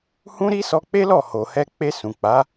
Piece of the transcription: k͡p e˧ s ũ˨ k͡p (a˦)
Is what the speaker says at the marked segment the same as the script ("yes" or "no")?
no